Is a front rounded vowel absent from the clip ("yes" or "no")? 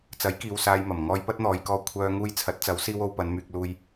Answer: no